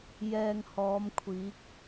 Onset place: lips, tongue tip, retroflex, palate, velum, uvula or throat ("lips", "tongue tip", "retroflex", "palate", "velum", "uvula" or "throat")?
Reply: palate